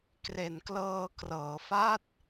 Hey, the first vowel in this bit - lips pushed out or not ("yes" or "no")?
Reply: no